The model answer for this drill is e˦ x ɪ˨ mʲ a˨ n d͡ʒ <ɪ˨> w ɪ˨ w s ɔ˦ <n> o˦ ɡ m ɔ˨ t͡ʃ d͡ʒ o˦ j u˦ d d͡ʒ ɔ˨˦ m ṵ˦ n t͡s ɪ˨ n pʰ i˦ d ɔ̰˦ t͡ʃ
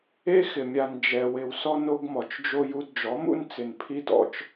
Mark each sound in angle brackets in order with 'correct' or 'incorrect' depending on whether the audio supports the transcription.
incorrect: ɛ˨, correct

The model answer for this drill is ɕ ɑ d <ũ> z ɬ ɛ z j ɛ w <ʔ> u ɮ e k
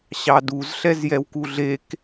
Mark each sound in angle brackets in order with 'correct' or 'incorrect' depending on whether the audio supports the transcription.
incorrect: u, incorrect: k

